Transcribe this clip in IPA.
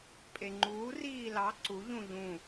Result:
pʼ e ŋ͡ǃ uː r iː l ɑ ǀ u ʎ ũ ʎ ũ

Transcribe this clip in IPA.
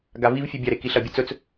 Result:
ɡ a v i v fʲ ʉ bʲ a ɾ e k i ɬ ɐ bʲ ɨ t͡s ɵ t͡s

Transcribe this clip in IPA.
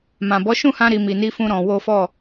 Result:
m ã˨ b ɔ˨˦ ʃ ũ˦˨ h ã˧ ɾ i˧ m i˨ n i˧ f ũ˧ ɾ ɔ̃˧ w o˦ f ɔ˦˨

